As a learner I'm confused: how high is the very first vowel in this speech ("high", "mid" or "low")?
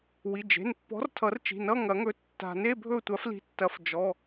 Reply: high